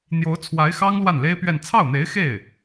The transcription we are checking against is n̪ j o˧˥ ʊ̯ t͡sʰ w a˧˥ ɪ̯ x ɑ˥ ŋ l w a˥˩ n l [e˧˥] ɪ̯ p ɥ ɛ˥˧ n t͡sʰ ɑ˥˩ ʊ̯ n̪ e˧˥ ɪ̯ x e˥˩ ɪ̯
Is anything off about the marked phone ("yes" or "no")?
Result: yes